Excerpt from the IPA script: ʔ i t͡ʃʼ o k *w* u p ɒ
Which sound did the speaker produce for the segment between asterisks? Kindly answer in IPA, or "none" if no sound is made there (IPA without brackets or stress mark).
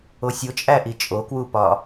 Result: w